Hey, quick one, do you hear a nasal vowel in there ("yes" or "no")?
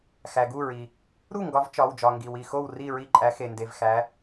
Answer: no